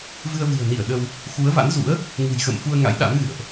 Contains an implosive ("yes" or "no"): yes